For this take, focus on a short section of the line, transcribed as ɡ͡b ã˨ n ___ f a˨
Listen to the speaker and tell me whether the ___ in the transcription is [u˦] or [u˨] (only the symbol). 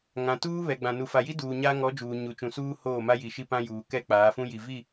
u˨